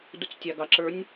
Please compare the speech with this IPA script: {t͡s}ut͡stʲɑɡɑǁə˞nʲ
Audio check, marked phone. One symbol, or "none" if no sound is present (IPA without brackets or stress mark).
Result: d